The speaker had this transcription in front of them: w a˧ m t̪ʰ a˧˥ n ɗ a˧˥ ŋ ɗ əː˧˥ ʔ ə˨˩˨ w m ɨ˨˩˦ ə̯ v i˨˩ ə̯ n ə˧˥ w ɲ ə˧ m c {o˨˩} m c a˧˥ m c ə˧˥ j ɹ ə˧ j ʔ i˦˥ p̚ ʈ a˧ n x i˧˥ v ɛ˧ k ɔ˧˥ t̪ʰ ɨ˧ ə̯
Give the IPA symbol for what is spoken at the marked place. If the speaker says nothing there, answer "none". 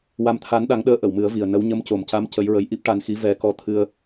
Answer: o˨˩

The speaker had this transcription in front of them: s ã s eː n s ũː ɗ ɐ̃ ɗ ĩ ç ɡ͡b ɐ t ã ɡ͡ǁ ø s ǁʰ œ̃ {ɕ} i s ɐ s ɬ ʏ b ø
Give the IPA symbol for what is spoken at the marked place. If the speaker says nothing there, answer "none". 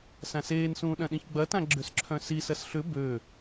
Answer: s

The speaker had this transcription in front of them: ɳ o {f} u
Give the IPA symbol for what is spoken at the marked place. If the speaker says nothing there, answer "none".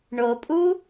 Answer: pʼ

